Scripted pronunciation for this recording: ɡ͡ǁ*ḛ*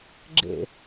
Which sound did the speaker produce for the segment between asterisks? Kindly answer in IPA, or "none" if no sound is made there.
ḛ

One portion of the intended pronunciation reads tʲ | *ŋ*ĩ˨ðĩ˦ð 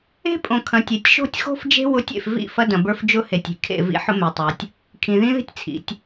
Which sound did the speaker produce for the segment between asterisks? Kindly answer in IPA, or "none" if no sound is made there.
kʰ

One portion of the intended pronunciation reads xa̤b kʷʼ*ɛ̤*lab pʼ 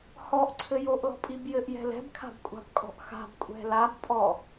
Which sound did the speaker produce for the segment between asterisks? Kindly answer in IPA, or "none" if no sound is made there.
ɛ̤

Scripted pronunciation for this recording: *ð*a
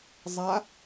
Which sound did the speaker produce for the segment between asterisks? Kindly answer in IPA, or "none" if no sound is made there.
zˤ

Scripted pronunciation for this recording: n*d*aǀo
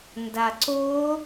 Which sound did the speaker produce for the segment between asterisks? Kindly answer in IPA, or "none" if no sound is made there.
d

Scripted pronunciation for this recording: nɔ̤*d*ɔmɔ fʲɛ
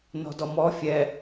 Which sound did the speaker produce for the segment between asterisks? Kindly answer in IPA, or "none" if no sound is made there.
d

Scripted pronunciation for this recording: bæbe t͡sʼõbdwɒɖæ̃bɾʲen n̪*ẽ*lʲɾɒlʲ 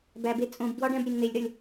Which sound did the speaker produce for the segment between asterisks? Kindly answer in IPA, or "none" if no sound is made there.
e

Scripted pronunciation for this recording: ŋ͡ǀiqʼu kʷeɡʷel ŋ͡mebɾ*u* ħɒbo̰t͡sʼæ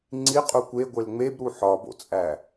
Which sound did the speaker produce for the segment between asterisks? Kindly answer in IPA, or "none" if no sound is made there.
u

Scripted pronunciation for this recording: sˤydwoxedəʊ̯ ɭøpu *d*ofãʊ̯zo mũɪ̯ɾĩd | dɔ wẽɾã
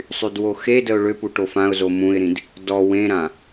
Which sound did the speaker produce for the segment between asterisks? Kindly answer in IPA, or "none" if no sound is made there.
ʈ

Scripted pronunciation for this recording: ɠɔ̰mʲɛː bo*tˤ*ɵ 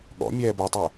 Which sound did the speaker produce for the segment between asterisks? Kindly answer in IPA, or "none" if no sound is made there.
tˤ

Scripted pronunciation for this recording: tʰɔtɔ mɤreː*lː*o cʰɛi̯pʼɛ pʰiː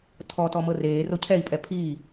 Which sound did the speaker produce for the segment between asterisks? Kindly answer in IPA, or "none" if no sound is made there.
r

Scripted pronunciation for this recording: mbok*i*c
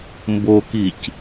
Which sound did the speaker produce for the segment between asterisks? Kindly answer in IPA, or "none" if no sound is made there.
i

